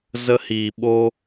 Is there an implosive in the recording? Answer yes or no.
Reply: yes